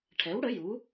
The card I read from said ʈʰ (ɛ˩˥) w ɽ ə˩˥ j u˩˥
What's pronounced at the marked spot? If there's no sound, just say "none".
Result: ɛ˩˥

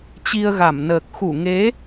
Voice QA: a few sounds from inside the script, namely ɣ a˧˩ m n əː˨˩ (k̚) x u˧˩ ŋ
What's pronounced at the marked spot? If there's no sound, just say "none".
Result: k̚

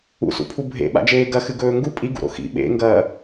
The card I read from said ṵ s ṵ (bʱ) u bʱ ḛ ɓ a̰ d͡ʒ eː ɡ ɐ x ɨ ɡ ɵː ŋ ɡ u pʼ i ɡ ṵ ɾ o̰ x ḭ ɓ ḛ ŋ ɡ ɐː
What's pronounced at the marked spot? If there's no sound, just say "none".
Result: pʰ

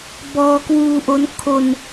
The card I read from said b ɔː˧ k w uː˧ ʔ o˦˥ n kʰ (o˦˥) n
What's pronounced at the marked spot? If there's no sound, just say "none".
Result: o˧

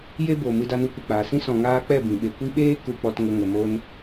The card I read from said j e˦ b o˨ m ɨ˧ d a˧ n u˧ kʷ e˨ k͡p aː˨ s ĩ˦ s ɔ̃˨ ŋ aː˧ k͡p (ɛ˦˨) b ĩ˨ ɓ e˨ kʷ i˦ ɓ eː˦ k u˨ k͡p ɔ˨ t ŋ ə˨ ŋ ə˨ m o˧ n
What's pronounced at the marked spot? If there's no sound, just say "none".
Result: ɛ˦˨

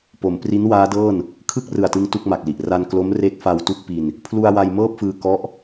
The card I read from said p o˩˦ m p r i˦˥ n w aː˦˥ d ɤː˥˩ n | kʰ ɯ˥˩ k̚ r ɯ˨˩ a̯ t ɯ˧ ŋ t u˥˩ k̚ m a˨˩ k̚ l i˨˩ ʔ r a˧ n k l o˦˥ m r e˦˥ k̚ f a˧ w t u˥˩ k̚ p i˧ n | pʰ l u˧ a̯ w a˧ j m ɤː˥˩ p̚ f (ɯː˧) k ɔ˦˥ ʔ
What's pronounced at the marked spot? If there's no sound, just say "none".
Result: ɯː˧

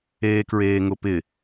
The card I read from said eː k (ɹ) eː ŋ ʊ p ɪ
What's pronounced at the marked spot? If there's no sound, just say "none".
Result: ɹ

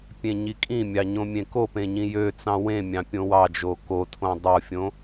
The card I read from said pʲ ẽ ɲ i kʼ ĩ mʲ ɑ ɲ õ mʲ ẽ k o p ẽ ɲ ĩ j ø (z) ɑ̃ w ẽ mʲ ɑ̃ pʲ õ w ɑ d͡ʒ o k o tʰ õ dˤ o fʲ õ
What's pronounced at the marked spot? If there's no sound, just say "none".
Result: t͡s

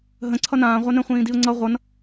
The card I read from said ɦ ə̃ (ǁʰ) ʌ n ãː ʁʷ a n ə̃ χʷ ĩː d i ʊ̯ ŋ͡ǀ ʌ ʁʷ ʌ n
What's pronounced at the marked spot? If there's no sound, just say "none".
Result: ǀʰ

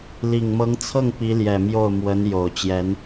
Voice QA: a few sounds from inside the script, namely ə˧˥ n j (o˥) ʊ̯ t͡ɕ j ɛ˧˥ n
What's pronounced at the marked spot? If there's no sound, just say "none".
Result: o˨˩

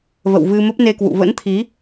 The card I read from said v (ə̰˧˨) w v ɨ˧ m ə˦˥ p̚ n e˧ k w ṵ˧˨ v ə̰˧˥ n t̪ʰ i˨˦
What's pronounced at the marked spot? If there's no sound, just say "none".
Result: ə̰˧˨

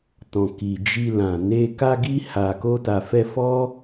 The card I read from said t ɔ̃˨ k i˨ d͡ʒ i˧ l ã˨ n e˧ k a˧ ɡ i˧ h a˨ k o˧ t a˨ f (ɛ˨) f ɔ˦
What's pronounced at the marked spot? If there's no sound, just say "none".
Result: ɛ˧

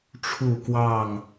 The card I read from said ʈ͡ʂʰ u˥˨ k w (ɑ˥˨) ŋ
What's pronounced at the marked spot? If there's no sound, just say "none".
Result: ɑ˥˨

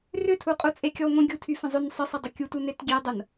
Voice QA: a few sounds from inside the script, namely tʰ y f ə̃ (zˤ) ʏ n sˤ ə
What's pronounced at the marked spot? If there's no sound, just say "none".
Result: zˤ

